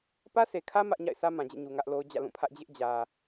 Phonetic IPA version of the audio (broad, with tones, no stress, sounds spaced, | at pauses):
p ä˦ s e˨ kʰ ä˦ m ä˦ ʔ ɲ a̰˦˨ ɪ̯ sʰ ä˦ m ã˨ d͡ʑ ḛ˦˨ ɲ u˨ ŋ ä˦ ʔ l o˦ ʊ̯ d͡ʑ ä̰˦˨ l ũ˦˨ pʰ ä˦ ʔ d͡ʑ ɪ˦ ʔ d͡ʑ ä˨